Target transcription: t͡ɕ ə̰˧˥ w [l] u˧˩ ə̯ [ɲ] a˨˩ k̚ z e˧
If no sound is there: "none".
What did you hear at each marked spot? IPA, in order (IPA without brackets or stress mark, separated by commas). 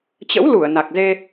l, n